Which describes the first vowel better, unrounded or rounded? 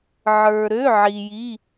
unrounded